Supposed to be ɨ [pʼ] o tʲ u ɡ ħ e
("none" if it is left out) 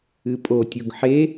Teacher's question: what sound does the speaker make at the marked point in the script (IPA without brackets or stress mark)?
pʼ